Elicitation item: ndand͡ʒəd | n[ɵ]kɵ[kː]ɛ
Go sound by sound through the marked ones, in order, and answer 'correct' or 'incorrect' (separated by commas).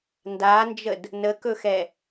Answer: incorrect, incorrect